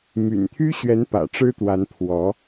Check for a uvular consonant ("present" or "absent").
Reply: absent